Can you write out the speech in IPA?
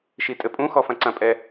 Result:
ʃ i tʼ ɘ pʼ ũ x ɔ f ɐ̃ ǀ ɐ̃ pʼ ɛ

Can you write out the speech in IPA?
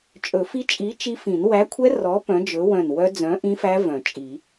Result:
t͡ʃʼ ɵ˨˩˦ f i˦˥ t͡ʃʼ i˨˥ t͡ʃ i˦˥ f ĩ˨˩˦ n w æ˨˥ kʷʰ ɛ˦˥ r ɔ˨˥ p œ̃˨˥ d͡ʒ ɵ˨˥ w œ̃˧˩ n w œ˦˥ d͡z œ̃˨˥ ʔ ĩ˦˥ f æ˦˥ v œ̃˨˩˦ t͡ʃʼ i˨˩˦

